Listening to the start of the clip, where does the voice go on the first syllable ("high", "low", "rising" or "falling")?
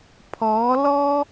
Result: rising